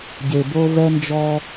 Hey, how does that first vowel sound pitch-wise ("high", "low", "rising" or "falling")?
low